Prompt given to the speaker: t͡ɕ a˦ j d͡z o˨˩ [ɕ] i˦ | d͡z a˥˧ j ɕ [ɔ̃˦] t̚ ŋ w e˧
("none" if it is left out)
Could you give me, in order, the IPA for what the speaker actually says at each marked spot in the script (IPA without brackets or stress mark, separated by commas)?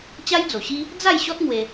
ɕ, ɔ˦